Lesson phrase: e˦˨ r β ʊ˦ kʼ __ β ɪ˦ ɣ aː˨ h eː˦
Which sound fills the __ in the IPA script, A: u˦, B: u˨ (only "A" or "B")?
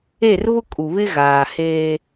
B